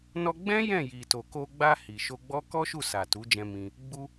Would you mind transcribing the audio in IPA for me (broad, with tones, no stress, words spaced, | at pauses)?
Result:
nɔ˧ɡ͡bɛ̃˦ jɛ̃˦˨ji˨to˨ko˧ ɡ͡ba˧ hi˨ʃo˧ɡ͡bɔ˦ kɔ˦ʃu˦˨sa˨ tu˨˦d͡ʒɛ̃˧ mĩ˧ | ɡ͡bu˧